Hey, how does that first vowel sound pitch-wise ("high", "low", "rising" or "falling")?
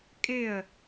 falling